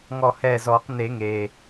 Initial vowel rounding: rounded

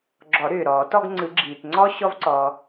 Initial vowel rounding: rounded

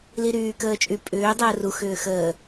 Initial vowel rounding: unrounded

